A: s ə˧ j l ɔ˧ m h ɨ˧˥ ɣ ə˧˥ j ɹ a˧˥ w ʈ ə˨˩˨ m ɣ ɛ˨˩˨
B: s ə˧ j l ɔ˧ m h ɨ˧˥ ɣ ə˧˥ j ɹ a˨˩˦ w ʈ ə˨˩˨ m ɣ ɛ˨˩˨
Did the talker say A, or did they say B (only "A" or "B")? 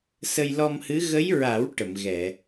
B